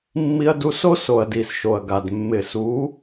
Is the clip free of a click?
yes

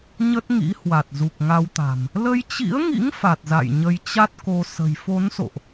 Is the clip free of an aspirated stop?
yes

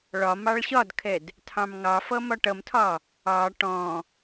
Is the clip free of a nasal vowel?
no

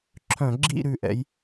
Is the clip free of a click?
no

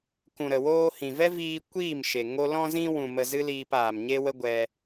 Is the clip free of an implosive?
yes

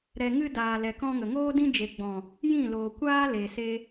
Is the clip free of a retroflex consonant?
yes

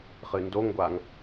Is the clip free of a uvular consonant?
no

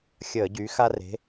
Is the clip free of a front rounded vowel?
no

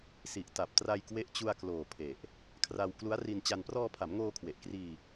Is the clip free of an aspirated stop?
no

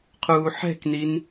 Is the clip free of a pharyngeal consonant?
no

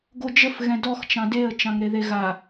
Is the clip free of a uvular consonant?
yes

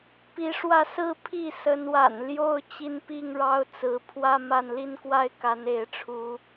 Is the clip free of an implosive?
yes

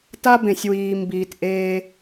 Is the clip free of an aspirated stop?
yes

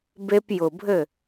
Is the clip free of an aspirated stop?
yes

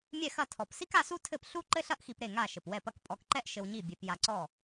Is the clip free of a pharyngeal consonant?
yes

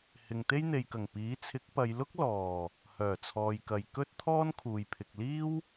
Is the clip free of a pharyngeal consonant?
yes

